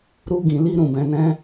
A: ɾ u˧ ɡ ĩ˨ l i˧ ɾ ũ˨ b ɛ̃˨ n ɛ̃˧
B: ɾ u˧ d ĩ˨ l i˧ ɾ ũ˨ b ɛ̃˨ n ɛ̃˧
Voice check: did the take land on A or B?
A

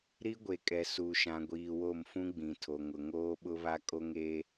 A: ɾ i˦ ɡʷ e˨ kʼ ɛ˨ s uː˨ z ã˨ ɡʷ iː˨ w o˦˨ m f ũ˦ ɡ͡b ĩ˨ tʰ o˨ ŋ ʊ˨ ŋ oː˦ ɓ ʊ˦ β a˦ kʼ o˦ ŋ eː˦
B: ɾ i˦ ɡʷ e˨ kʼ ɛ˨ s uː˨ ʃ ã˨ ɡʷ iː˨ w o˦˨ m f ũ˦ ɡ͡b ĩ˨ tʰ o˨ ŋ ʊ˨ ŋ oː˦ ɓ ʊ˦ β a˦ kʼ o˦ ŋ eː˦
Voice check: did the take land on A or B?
B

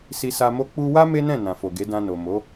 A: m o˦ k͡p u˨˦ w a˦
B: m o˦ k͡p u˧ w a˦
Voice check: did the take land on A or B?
B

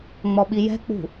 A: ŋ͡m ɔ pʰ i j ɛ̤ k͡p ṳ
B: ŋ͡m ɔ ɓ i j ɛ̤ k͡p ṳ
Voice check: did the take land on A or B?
B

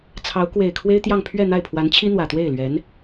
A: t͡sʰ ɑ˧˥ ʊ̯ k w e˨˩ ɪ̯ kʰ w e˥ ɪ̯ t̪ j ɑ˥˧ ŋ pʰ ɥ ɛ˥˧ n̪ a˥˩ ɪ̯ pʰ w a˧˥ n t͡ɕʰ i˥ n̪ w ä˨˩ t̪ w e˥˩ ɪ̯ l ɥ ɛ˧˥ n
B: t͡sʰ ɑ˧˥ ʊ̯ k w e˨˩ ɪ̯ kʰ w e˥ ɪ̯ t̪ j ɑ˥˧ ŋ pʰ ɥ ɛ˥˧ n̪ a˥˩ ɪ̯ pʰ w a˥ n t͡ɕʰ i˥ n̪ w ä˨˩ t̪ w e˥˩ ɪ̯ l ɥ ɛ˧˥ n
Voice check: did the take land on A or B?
A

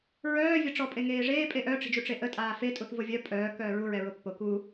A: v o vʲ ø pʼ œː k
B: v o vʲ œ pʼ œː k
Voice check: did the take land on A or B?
B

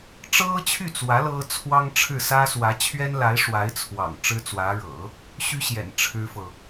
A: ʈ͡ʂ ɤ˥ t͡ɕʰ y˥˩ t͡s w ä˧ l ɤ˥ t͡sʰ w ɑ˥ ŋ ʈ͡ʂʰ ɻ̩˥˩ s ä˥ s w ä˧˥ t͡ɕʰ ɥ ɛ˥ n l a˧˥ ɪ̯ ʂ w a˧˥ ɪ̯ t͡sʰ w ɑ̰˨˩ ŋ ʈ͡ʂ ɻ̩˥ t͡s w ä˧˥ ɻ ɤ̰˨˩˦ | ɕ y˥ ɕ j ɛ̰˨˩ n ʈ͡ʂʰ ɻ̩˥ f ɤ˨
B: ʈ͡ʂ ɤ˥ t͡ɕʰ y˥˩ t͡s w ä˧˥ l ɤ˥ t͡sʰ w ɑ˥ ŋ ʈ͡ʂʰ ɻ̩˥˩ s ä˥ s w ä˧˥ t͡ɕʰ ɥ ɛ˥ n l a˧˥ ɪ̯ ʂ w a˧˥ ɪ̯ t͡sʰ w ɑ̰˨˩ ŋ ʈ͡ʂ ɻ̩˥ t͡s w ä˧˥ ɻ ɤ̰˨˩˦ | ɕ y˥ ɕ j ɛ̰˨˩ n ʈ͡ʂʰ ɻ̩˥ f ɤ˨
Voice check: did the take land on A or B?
B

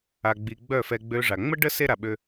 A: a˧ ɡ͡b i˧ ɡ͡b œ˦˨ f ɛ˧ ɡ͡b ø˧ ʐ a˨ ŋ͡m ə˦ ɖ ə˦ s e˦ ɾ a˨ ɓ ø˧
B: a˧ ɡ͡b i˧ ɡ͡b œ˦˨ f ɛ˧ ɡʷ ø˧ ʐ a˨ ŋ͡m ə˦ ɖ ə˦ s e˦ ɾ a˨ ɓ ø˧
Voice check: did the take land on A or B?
A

